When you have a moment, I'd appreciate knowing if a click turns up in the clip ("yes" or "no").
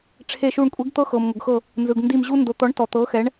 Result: no